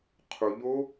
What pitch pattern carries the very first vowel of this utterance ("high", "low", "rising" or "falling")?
low